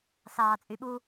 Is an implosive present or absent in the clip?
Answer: present